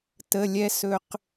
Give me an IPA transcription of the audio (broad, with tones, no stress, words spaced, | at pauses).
tə˧˥˧lʲɛ˥ sɵ˥q